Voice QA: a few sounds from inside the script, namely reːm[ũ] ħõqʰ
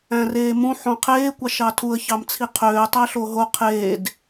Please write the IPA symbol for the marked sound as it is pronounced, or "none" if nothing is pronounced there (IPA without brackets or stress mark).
ũ